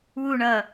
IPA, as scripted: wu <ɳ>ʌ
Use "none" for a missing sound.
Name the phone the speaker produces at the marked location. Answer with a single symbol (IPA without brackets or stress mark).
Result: ɳ